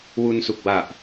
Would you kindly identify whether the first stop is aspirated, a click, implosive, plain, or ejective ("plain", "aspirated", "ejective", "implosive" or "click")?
plain